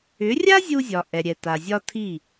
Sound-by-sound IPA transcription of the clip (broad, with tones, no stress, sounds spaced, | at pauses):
ʏ˩˥ rʲ a˥ zʲ u˧ zʲ ɒ˩ ʔ ɛ˩ ɾʲ ɛ˩ t a˩ zʲ ɒ˥ tʰ i˥˩